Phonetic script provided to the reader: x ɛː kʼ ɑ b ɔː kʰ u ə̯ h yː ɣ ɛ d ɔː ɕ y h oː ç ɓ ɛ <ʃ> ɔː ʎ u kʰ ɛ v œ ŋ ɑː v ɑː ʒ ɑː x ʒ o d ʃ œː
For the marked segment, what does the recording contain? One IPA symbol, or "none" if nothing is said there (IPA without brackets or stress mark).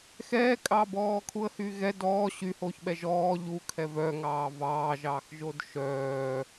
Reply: ʒ